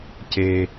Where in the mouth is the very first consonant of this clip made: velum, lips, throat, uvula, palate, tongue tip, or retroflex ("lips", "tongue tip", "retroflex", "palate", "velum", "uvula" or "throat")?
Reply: palate